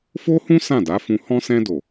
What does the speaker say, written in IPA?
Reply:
f o˦ h ũ˦ s ã˦˨ d a˨˦ f ũ˧ h ɔ̃˦ s ɛ̃˧ d o˨

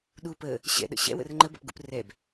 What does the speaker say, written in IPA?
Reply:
ɗ u p ə | ɕ ɛ̰ ɗ ə̰ ɕ ɛ̰ w ə̰ r ŋ͡ǃ ə b ɛ̰ p ɡ ṵ p r ɛ b

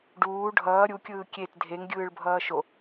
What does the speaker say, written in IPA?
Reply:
ɖ uː ɖʱ ʌː ɾʲ u kʲ ɯː kʲ e t dʱ e ŋ ɡʲ ɯː ɭ bʱ ʌː ʃ o

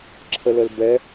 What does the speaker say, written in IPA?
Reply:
ǁʰ ə l ə l b ɛ

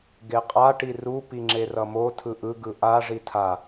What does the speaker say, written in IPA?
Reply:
ɡ e qʼ a ʈ i r u p i ŋ͡ǁ e r ʌ m o tʰ ɯ ʔ ɯ ɡ ɯ ʔ a ʐ i tʰ a

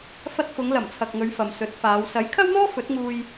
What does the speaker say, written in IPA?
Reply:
f ɐ˧ t̚ f ʊ˨˧ ŋ l ɐ˨˩ m t͡sʰ ɐ˨ k̚ ŋ ɵ˨˧ ɥ f ɐ˨ m s ɵ˨˥ t̚ f aː˨˧ w s ɐ˨˥ j kʰ ɐ˥ w n̪ ɔː˥ f ɵ˨˥ t̚ ŋ uː˧ j

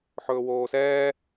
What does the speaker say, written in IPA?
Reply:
ħ ɵː w oː s ɛː

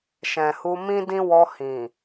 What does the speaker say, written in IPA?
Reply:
ʃ ɛ̃˨ h u˧ m ĩ˦ d ĩ˦ w ɔ˧ h ĩ˨

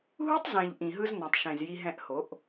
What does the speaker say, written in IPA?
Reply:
ɦ u˦ tˤ z ẽ˨ ʎ ʔ ĩ˨ ɦ ɯ˦ z n ɔ̃˨ tˤ ʃ ẽ˨ z j i˧ ɦ ɛ̃˧ ʔ h o˨˦ ʔ

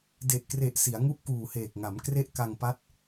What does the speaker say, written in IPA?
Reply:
d e˨˩ ʔ k r e˨˩ ʔ s i˩˦ a̯ ŋ u˥˩ ʔ k uː˨˩ h eː˨˩ k̚ ŋ a˩˦ m k r e˥˩ ʔ k a˧ ŋ p a˦˥ t̚

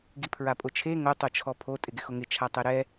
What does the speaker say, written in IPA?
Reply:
ɡ i pʰ ɹ a pʼ ʊ t͡ʃʰ e ŋ o tˤ o t͡ʃʰ ɔ pʰ o tʼ ɪ ɡ ɪ x ʊ ŋ ɪ t͡ʃʰ a tˤ ɛ ɾ ɛ

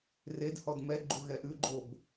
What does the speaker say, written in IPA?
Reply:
r e d h ɔ d m ɛ ɡ͡ǃ u ɣ ɛ ʔ ʉ ɡ͡ǃ o b

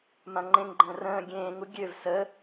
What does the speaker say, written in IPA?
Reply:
m ã ŋ͡ǃ ẽ ŋ ɡ͡ǃ ə̃ː r ə̃ː ɡʲ ẽː ŋ u ɡʲ ø v s ə

